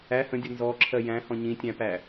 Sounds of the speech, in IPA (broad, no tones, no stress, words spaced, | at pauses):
æ hə̃dʲʌ nzɔǁʰɜ jæ̃hɔ̃ ɲĩtʲæ̃pæ